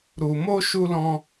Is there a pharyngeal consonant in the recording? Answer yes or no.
no